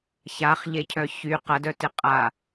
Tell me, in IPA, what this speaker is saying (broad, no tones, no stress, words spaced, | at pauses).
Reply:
çaχʎecʰœ çy qɐdœtɪ qʼa